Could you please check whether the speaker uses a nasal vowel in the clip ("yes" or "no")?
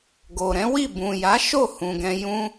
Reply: yes